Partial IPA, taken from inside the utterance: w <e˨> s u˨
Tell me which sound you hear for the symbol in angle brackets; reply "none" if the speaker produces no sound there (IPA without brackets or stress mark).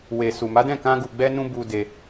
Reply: e˨